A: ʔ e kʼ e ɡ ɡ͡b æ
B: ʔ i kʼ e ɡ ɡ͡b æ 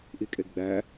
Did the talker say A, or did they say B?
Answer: B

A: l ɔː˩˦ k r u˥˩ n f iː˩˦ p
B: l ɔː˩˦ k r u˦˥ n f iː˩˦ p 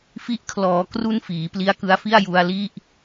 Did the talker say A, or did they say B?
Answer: A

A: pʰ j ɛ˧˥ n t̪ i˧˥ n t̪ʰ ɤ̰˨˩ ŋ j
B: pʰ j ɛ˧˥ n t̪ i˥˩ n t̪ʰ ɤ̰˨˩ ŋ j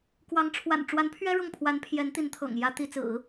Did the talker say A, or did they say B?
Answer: A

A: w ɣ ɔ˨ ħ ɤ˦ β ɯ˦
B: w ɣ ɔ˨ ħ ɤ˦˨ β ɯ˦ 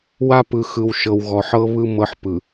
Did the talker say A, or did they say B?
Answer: A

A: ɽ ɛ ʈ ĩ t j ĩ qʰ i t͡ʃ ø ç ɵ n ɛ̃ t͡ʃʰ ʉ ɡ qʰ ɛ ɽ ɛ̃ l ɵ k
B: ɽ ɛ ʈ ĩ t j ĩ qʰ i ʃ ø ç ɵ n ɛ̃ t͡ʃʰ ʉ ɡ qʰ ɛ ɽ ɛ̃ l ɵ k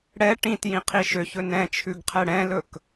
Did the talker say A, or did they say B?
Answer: B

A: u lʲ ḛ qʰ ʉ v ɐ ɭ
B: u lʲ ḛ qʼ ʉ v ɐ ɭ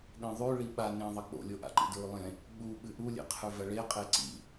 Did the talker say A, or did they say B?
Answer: A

